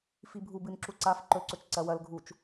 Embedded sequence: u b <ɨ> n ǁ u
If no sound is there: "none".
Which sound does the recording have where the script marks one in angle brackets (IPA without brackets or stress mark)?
ɨ